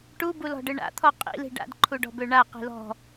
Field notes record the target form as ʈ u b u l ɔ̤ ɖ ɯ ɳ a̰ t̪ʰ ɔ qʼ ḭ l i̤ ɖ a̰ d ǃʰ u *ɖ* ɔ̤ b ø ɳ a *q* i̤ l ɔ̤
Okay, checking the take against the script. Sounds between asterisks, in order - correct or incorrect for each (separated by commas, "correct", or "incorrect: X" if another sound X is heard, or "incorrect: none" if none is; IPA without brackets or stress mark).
correct, correct